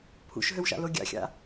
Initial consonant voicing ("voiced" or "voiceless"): voiceless